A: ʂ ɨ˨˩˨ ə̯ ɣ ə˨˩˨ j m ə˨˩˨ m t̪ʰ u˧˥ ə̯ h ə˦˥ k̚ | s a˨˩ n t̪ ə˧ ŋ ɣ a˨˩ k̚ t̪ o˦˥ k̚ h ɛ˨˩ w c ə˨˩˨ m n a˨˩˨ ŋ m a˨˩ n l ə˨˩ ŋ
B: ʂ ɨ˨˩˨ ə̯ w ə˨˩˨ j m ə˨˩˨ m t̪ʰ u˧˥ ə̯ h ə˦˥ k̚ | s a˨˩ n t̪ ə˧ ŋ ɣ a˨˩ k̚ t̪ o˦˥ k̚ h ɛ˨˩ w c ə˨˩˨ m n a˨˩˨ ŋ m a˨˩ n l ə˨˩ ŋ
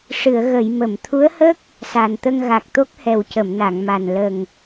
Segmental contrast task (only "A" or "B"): A